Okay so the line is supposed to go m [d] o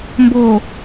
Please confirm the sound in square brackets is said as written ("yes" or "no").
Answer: no